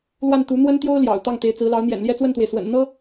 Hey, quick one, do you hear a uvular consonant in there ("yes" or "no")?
no